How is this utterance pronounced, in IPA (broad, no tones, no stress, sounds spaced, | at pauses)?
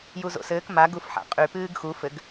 j u z o̰ s ɘː k m a ɡ u f ħ a̰ qʼ y p ɨː ɡ x u f ɘ ɡ